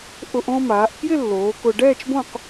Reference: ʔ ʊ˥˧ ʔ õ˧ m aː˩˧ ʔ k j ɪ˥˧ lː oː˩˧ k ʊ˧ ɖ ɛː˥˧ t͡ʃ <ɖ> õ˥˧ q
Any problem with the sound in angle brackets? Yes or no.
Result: yes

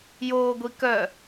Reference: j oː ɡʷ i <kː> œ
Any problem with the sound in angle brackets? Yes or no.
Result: yes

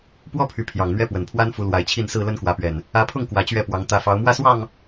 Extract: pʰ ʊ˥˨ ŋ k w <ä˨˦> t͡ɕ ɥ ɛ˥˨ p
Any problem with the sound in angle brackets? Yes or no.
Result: no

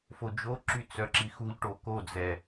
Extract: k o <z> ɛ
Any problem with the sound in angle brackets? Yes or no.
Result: yes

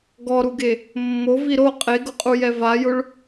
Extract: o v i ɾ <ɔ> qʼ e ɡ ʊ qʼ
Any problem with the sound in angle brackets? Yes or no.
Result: yes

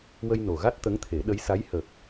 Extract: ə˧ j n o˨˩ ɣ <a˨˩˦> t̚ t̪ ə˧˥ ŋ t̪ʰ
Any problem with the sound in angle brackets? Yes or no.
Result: yes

